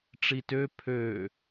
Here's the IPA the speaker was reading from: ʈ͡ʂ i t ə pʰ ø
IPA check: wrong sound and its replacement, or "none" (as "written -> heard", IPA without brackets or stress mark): ə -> ø